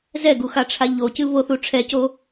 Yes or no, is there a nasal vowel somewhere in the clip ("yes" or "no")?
no